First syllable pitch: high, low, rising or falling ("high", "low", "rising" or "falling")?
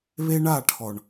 high